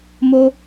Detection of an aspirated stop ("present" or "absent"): absent